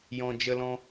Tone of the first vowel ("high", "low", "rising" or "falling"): low